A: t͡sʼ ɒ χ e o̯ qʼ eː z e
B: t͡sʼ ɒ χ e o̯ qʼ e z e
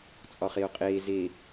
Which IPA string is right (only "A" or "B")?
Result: A